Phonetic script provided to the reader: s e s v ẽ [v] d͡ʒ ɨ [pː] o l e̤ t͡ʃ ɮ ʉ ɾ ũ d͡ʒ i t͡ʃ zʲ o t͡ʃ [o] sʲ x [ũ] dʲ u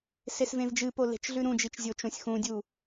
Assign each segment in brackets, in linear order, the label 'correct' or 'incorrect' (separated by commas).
correct, incorrect, incorrect, correct